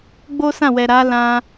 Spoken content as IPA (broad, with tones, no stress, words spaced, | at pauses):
ɡ͡bo˦sã˦˨wɛ˨ɾa˨˦ lã˧